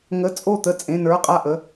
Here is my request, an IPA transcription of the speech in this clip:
ŋə˧˥˧t͡sʼo˥˨t̪ə˥˨ t͡sʼẽ˧˥˧nə˞˧˥˧qʼa˥˨ ʔə˧˥˧

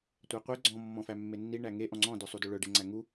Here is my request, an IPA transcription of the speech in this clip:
tʷæqʷe ɡ͡ǀɔ̃ mːɔ̃fæmːenːi ɳæŋe ʔɔ̃ŋ͡ǀɔ̃ dœsˤudɵɭœ ɖeŋ͡ǀæŋu

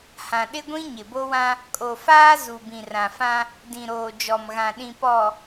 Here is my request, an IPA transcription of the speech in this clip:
hã˨ɗɪ˦ɡʷĩ˦ ɲɪ˨bo˦wã˦ | kʼo˨faː˦ zu˨ bĩ˨rã˨fã˦ | dĩ˨ɾoː˨ d͡ʒɔ˨mɣã˨ɗĩ˨ pɔ˨

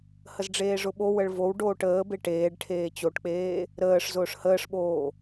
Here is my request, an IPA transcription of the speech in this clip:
həzɖ͡ʐeːʐʊɓo wəɭvow ɖoːʈəː beʈeːɖ ʈʰeːt͡ɕoʈk͡peː | ɾəːʂ zʊːʂhəːʂɓoː

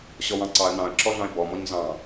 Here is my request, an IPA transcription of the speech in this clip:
ɕɔwɑ̃ǀɑə̯ nɑ̃ə̯ǁɔɮɑ̃ɪ̯ bɔmɔɲ zɑ̃

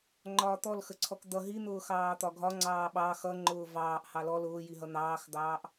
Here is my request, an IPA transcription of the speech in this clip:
ŋ͡ǃɒːt̪ɔl xəǀʰɔkd̪ʌ ɦin̪ʊː xɑːt̪ɒɡʱɒ ŋ͡ǀɑːɓɑ xʌŋ͡ǃʊː vɑːʔ hɑlɔ lʊːjiɦʌ n̪ɑːxd̪ɑːʔ

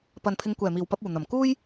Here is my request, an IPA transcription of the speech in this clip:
pɐ˨npʰɪ˨˧ŋ kʷɛː˨˩miː˨˩wpɐ˧p̚ uː˨˩n̪ɐ˨˩m kuː˥j

